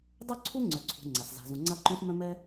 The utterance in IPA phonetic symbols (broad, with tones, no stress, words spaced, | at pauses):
dˤœ˧ǀʰu˧ ŋ͡ǀœ˩ǀʰṳ˩ ŋ͡ǀa˩s za̤˩zũ˩ŋ͡ǀa˧ǃũ˧s mœ̃˧mɛ˧